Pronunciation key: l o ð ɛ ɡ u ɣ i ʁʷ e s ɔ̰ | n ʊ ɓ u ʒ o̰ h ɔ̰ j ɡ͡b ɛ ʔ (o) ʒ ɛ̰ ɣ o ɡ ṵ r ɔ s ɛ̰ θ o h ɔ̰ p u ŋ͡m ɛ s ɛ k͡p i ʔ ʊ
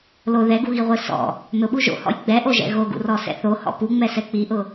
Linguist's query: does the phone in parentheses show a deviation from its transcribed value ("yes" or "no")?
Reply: no